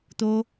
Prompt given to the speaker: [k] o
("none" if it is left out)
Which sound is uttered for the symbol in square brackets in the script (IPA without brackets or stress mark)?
t̪